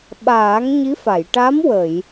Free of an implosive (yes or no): no